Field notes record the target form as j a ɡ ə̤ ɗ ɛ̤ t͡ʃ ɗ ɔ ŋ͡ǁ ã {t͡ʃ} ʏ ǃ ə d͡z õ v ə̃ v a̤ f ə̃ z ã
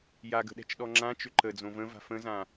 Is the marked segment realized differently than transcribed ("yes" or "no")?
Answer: no